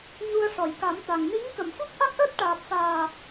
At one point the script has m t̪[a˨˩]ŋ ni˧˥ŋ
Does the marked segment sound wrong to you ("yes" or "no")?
no